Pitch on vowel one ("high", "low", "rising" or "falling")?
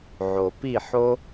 low